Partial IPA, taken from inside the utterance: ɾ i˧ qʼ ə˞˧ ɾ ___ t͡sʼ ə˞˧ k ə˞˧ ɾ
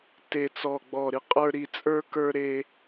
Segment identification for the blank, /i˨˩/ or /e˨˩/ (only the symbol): i˨˩